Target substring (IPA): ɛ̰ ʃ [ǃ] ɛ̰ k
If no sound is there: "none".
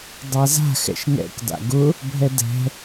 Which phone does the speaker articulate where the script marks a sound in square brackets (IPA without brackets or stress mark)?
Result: ŋ